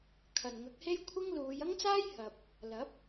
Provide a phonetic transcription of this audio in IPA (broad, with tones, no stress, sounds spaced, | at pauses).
kʰ ɐ˨˩ n ŋ ɐ˨˥ k̚ h e˥ j kʷʰ ɪ˥ ŋ l uː˨˧ j ɐ˥ ŋ t͡s aː˥ j h ɐ˨ p̚ | l ɐ˨˥ p̚